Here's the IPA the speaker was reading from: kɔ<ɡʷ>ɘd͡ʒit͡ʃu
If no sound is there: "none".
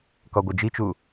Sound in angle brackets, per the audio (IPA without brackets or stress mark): ɡʷ